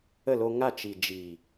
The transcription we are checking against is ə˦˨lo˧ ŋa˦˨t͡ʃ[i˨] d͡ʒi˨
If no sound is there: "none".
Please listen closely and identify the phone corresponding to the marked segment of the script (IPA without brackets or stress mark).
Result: i˨